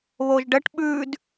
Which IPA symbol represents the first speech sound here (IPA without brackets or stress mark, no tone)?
β